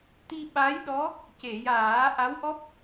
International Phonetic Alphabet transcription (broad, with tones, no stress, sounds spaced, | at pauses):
t̪ i˧ ɓ a˧˥ j ɗ ɔ˧˥ | c e˨˩˨ j aː˨˩˦ ʔ a˧˥ w ʔ ɔ˦˥ p̚